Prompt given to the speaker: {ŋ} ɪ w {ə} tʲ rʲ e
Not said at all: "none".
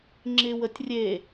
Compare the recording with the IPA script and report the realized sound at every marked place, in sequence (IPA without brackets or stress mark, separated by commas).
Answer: ŋ͡ǁ, ə